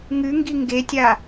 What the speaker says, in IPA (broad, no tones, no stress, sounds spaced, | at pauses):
ŋ ʉ ŋ ɡ i ŋ ɡ e tʲ a